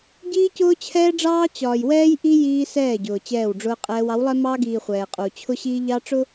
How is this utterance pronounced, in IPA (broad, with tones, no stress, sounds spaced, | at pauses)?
ɟ iː˦ c ʊː˦ t͡ɕʰ ɛː˦ ɖ͡ʐ ɑː˦ t͡ɕ ɒː˨ j w ɛː˦ j ʔ i˦ j iː˦ s ɛː˦˨ ɟ ʊː˨ t͡ɕ ɛː˦˨ w ɖ͡ʐ ʊː˦ qʼ ɛː˦ w ɑ˨˦ w lˠ ɛ˦ m ɑː˦ ɡ iː˨ χʷ ɛː˨ qʼ uː˨ t͡ɕʰ ʊ˦ ɕ iː˦ ʎ ɑ˦ ʈ͡ʂ ʊ˦